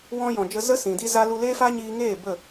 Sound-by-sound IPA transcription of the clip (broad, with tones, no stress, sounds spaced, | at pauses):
w ɔ̃˧ j ɔ̃˨ d͡ʒ ə˧ z ə˦ s ĩ˨ d i˦ z a˦ l u˧ l eː˦ f a˦ ɲ iː˧ ŋ eː˦˨ b ə˦˨